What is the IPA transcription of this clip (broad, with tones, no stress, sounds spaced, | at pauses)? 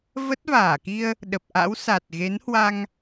v ə˦˥ t̚ v aː˧˩ k i˧ ə̯ | ɗ ə˨˩ p̚ ʔ a̰˧˥ w s a˨˩ t̚ ɣ e˨˦ n h w a˧ ŋ